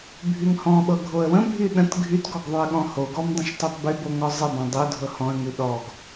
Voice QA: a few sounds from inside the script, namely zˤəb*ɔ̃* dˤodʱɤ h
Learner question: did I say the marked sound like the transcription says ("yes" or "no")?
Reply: yes